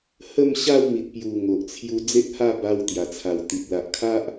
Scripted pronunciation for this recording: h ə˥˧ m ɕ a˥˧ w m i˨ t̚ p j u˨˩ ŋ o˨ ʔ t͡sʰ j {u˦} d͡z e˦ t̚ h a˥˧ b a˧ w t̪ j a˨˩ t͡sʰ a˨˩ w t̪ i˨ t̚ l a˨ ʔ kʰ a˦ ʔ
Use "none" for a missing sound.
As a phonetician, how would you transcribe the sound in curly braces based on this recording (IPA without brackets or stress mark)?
u˦